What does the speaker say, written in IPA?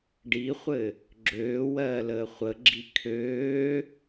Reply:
ɖ i χʷ ɘ | ɡ͡ǁ øː w ɜː l əː χʷ ə ɡ͡ǁ i kʰ øː

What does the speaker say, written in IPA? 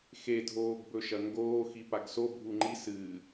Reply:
x e dʱ oː ɡ b ɵ ʃ ɐ ŋ ɡ oː x i p a ɡ s o bʱ u ŋ͡ǃ i s ɨː

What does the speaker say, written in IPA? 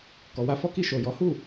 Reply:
k ɔ˨ w a˧ f ɔ˦ k i˦˨ ʃ o˨ j ɔ˨˦ h u˦˨

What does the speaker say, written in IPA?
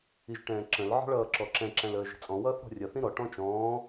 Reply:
i ʒ ʈ ɛ̃ː ǁ ə̃ l ʕ ɔ̤ ɭ ʌː ǁ ɔ ǁ ɛ̃ ǁ æ̃ l əː ʒ i̤ t͡sʼ ɔ̃ w ʌː θ ɾ ɔ̤ rʲ ʌ θ ĩ ɾ ɔ ʈ ɔ̃ t͡ʃ ɔ̃ː

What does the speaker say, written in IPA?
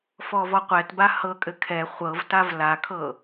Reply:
f ɔ v ɔ qʷ ɛ t b a h ɤ kʼ ɘ kʰ ɛ χʷ ɤ v t a v l a kʰ ɤ

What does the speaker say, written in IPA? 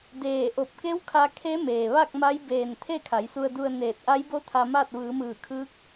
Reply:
d eː˧˩ ʔ o˧˩ p̚ k e˧˥ w kʰ a˧ kʰ e˧˥ m eː˩ ʋ a˥˨ k̚ m a˧˥ j b eː˧˩ n t̪ʰ e˥˨ kʰ a˩˧ j s u˧ ə̯ d u˧ ə̯ n eː˧˩ t̚ ʔ a˧˥ j b o˧˥ t̪ʰ a˧ m a˥˨ t̚ ʋ ɯː˩˧ m ɯː˧˩ kʰ ɯː˧˥ k̚

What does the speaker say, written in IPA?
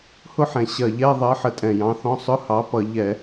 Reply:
h ʊ˥˧ ħ ɛ̃˨˩ ɕ ɜ˨˩ ʎ ɛ˧˥˧ ðˤ ɜ˨˥ ħ ə˨˩ tʼ ɛ̃˨˩ j ɑ̃˨˥ θ ɔ̃˧˥˧ sˤ ʊ˧˥˧ h ɑ˨˥ p ʌ˧˩˧ ʎ ɛ˧˩˧

